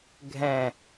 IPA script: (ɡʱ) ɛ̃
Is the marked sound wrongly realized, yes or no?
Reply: no